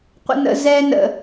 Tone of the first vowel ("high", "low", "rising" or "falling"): high